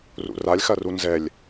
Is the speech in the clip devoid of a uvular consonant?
yes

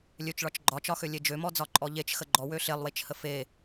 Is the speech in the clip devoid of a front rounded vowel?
no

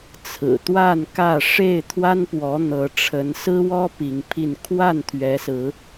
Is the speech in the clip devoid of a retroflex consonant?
no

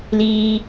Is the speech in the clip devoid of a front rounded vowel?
yes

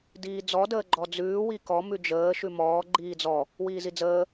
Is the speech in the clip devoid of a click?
no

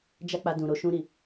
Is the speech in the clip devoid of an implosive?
yes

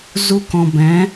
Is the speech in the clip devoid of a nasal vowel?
no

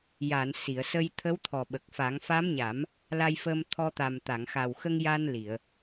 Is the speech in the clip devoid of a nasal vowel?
yes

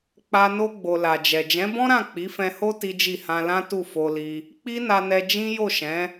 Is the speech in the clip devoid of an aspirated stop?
yes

